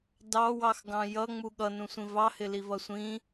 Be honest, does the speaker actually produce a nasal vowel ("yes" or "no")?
yes